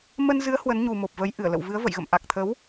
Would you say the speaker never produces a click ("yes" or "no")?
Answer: yes